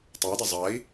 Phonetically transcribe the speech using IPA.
tˤ əː d ɐ zˤ ɐː i̯

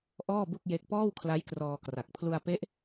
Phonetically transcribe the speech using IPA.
ʔ ɔː˥˩ b u˥˩ k̚ j e˦˥ k̚ p ɔː˥˩ w kʰ l a˦˥ j k r ɔː˧ k r a˨˩ k̚ pʰ l u˧ a̯ p e˦˥ ʔ

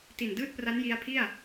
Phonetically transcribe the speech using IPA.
t i˨˩ n d ɯː˥˩ t̚ p r a˦˥ n j i˦˥ a̯ pʰ i˥˩ a̯

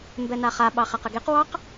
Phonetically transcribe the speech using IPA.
m b ɛ n a χ a ɓ ɑ χ æ q ə ɡ e q w ɑ q

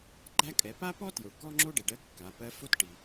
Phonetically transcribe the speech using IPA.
ɡ͡ǃ æ˥ kʼ ɛ˩˧ p a˥ p ɔ˥ t j o˩ ɭ k ɔ˥ ŋ͡ǁ o˥ ɖ e˩ ɖ ɜ˧˥ kː a˩˧ p ɜ˧˥ f o˥ t ʈ i˩

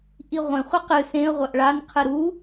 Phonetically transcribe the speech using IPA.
ʔ i ʁʷ ẽ χʷ ɨ q ɨ s ẽ ə̯ ʁʷ ɐ ʔ ɭ a n qʰ ɨ ɾ u

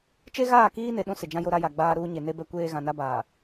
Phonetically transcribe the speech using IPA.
t͡ʃ e˦ ɣ aː˦˨ k iː˦ n e˨ ɗ ũ˦ s ɪ˨ d͡ʒ ã˦ j o˦ ɾ a˦ j a˨ ɡ͡b aː˦ ɾ uː˦ ɲ e˨ n e˦ b ɛ˦ kʷ eː˦ ɣ ã˨ n a˦ b aː˨

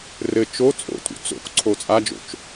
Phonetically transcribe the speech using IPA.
r ɘ t͡ʃ o t͡sʼ o̰ tʼ ṵ t͡s o̰ k ǀʰ o t͡sʼ a d͡ʒ o̰ t͡ʃ

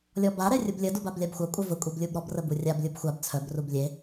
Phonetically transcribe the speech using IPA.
lʲ ɔ b a ɾ ɛ rʲ u b lʲ ə d u b a b lʲ a b xʷ a kʷʼ œ v ə kʷʼ e b lʲ u b ɾ ɔ b r ə b u rʲ a b lʲ u b xʷ a b t͡sʰ œ b r u b lʲ e

